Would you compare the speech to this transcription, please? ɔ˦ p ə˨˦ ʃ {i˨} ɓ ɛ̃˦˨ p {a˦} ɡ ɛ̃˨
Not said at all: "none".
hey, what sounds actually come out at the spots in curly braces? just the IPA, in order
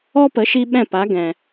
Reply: i˧, a˨˦

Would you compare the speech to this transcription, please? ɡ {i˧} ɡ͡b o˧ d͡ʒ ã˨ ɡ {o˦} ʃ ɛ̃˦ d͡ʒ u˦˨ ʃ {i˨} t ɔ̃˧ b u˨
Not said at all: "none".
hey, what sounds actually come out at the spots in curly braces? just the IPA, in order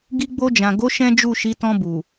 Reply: i˧, o˨˦, i˨˦

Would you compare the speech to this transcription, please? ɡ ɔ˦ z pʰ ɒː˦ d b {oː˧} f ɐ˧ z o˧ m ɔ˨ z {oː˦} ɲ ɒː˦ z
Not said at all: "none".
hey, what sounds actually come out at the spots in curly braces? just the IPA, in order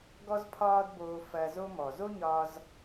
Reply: oː˧, o˦

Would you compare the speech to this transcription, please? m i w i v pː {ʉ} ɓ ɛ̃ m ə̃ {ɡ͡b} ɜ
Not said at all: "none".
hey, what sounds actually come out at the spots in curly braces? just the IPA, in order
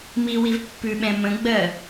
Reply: ʉ, ɡ͡b

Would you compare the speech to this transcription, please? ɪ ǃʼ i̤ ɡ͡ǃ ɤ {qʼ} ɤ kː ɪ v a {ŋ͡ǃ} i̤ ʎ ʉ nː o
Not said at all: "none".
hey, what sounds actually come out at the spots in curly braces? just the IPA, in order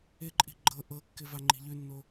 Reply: ʔ, ŋ͡ǃ

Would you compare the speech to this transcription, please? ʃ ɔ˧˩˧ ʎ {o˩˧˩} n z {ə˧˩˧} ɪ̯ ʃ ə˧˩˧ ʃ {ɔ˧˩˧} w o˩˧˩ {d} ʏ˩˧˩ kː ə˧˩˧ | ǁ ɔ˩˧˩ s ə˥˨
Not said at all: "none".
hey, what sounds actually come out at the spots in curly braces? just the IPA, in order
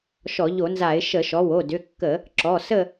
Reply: o˧˩˧, a˧˩˧, ɔ˩˧˩, d

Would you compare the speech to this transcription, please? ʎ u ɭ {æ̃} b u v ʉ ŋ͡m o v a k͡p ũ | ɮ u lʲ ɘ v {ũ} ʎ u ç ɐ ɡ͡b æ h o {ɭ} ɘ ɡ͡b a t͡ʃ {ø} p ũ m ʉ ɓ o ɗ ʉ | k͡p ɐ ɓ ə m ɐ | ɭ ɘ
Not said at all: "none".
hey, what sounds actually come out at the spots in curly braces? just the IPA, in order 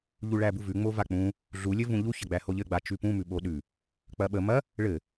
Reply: æ, ũ, ʎ, ʉ

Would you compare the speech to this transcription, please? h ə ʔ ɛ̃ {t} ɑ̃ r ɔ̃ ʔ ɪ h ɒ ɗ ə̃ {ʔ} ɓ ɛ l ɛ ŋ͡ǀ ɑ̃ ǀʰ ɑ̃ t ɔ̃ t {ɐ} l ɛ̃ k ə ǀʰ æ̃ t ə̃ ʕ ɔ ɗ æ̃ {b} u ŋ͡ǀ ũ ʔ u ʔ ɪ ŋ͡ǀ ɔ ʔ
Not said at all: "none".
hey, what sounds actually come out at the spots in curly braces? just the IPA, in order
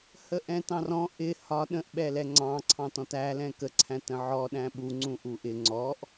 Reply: t, ʔ, æ, ɓ

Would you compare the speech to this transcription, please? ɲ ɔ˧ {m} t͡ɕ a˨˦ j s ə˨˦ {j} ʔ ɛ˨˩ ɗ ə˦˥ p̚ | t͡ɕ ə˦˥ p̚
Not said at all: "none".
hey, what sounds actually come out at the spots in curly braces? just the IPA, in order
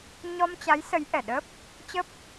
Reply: m, j

